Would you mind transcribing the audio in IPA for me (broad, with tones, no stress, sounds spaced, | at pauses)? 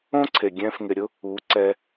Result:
õ˦ ǀʰ e˨ ɡʲ ɛ̃ː˧ f ŋ ɪ˨ ɾʲ ʊ˦ | u˨˦ ǀ ɛ˧